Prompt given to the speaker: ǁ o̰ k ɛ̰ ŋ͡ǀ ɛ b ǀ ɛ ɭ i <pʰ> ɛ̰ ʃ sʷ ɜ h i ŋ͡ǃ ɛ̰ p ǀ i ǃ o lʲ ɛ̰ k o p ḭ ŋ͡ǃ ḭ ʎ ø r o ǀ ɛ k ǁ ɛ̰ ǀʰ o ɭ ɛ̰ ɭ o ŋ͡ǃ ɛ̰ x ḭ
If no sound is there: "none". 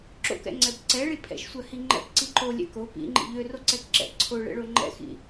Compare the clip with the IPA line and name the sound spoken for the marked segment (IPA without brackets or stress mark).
pʰ